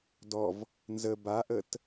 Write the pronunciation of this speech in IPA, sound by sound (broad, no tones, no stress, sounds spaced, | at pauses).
d ɔ v | n z ə b a ʔ ə t